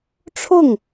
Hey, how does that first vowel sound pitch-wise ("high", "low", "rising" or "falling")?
falling